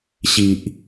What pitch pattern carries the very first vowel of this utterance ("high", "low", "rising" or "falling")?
low